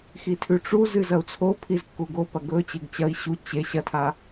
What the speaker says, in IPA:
x i tʰ ʉ ʈ͡ʂ u z ɨ z ɐ u̯ t͡sʰ o pʰ i z kː u ɡ o p ɐ ɡ ɵ t͡ɕ e ɡ t͡ɕ ɐ i̯ ɕ u t͡ɕ e ɕ ɐ tʰ a

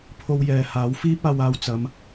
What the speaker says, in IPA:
pʰ o˧ w j ɛː˨ h aː˨˥ w f iː˥ p̚ aː˧ w aː˧ w t͡s ɐ˨˧ m

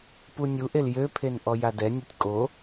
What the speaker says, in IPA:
p u nʲ u ʔ e l j ø pʰ e n ʔ ɔ j a d ɛ nʲ o tʲ kʼ o

